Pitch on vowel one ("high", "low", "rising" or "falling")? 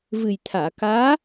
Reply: low